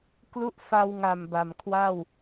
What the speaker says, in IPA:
k l u˦˥ ʔ f a˧ w ŋ a˨˩ m b a˨˩ m kʰ w a˥˩ w

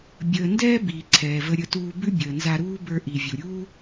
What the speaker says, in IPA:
bʲ əː˩ n d ɛː˥ b iː˩ ǀʰ ɛː˩ v ə˧ ɾʲ ə˧ t uː˧ b ʉ˥ bʲ əː˩ n z a˧ ɾ uː˥ b ə˞˧ ʔ i˩ vʲ u˩ ɾʲ uː˥

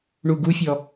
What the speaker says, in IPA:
ɳ u ɡ u fʲ ɔ

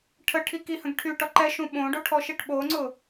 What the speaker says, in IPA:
ʈʰ ə ʈʰ i k i h ə̃ ɡ ʈʰ y ʈ ɔ ǃ ɛ ʃ ũ ɓ õ ɖ o ʈʰ ɔ ʃ i ʈ ɓ o ŋ͡ǀ ʊ

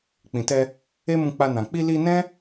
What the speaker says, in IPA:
k͡p ĩ˨ t ɛ˧ | e˦ m ũ˧ k͡p a˧ n ã˨ k͡p i˧ l i˧ n ɛ̃˦

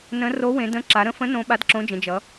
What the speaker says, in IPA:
n ə̃˨˥ r o˨˥ w ẽ˩˧ d ə̃˨˥ ǁ a˩˧ ɾ ə̃˨˥ f ə̃˨˥ n õ˨˥ ɓ a˨˥ d ǁ õ˨˥ d͡ʒ ə̃˩˧ d͡ʒ ʌ˩˧

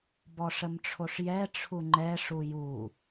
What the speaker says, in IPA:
b ɔ ʂ ə m ʈ͡ʂʰ o ʂ j ɛ ʈ͡ʂʰ u ŋ͡ǃ ɛ ʂ u j u

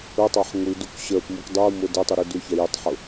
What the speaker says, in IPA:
ʊ tˤ ɑ ħ ŋʷ i d u k ɕ ə˞ p m u k dˤ u m ʊ d ə tˤ u ɾ i d u ç ɛ j ʊ tˤ ħ ʊ

